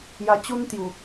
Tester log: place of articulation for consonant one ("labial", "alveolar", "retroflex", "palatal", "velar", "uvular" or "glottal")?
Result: palatal